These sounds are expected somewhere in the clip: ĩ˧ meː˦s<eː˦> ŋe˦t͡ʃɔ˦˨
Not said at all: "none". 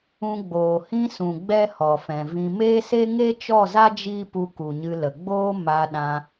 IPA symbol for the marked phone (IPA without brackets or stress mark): e˦